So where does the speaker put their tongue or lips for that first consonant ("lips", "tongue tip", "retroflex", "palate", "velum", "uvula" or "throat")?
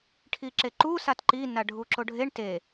retroflex